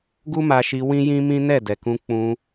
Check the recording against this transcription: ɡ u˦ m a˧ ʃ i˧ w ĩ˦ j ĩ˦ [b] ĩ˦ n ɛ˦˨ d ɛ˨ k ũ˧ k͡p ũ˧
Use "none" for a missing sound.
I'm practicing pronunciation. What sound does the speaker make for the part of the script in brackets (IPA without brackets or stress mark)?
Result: m